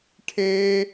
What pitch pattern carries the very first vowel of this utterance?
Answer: high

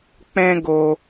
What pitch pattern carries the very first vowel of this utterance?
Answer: high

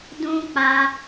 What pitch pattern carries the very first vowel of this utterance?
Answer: high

